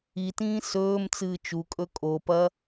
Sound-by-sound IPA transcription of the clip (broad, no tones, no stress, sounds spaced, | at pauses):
i t ĩː s ɵː m t͡s ɨː t͡ʃ u kʼ ɵ kʼ o p ɐ